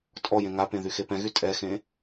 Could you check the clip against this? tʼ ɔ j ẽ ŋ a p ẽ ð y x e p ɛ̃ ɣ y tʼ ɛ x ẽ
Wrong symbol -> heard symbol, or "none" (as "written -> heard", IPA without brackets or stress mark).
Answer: none